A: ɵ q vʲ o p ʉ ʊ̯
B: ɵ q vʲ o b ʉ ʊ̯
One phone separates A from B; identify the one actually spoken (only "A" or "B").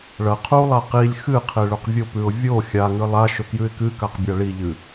A